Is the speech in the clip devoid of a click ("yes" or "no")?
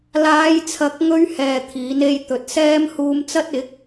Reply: yes